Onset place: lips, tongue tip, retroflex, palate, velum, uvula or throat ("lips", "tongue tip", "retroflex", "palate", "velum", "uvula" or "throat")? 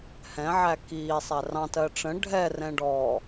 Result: throat